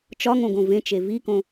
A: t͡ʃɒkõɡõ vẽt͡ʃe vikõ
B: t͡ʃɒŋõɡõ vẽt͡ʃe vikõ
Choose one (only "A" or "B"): B